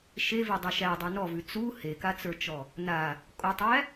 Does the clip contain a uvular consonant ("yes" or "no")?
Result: no